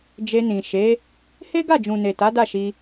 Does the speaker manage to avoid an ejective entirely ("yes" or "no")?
yes